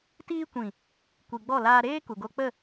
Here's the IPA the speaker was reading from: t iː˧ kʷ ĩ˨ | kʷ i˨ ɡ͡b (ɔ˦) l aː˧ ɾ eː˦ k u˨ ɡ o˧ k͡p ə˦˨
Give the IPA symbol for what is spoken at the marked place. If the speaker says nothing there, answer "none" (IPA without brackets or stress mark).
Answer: ɔ˦˨